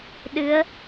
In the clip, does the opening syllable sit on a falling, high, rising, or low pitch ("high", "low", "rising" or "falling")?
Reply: rising